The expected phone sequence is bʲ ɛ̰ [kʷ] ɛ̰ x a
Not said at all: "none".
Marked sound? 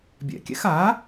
kʲ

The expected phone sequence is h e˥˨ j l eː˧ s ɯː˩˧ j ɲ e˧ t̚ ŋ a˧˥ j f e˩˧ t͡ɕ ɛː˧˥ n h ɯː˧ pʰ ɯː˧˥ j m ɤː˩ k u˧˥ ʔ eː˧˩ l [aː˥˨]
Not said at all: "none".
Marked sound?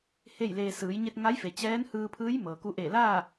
aː˥˨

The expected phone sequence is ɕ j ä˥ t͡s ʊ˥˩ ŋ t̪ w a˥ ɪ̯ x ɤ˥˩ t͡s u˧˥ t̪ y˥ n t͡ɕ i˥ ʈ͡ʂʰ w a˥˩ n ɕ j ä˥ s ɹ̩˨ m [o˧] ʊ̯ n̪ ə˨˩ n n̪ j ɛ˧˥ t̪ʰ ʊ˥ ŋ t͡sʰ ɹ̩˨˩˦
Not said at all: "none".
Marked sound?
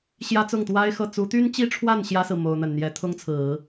o˧˥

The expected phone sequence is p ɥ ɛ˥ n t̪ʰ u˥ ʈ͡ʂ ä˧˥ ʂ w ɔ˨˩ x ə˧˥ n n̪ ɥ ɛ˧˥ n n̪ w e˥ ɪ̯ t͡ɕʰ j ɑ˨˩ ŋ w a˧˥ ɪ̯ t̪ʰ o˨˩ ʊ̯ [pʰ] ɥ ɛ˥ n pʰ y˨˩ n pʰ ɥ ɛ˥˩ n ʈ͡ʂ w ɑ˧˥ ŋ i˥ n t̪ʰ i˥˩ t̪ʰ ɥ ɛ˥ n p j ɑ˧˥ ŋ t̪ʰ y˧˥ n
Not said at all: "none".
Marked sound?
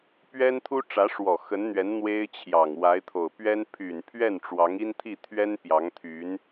p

